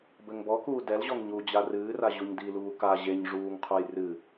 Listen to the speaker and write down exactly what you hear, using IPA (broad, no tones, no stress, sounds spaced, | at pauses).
b ɘ ŋ b ɔ k uː d ɛ l ʑ ɔ ŋ ɲ u d͡ʑ a r ɨː r a ʑ u ɲ d i l uː k a ʑ e ɲ ʐ uː ŋ qʰ u j r ɨ